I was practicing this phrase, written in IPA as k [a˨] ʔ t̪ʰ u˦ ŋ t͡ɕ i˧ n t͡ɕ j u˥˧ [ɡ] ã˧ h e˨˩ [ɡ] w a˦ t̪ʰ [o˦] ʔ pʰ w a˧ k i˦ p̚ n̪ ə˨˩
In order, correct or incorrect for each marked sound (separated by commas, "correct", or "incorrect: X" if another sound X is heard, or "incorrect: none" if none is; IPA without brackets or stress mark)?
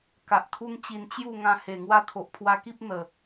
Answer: correct, incorrect: ŋ, incorrect: ŋ, incorrect: o˨